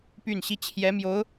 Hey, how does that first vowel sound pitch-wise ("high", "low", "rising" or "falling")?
falling